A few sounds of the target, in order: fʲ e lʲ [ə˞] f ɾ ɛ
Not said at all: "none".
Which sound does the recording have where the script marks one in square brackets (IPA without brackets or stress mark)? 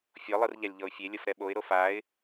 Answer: ɤ